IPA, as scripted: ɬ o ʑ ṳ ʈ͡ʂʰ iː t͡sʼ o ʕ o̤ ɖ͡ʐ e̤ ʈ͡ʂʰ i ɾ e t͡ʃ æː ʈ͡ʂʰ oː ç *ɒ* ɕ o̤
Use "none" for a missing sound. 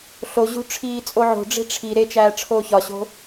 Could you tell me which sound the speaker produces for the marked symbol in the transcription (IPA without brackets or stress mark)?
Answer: ɒ